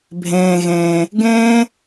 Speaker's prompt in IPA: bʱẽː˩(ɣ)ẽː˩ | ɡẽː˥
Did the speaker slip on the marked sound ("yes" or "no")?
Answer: no